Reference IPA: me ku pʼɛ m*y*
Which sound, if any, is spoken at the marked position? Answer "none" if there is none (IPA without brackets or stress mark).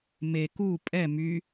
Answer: y